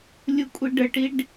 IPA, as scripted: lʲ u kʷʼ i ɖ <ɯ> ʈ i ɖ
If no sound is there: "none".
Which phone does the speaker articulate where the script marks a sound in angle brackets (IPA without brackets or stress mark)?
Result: ə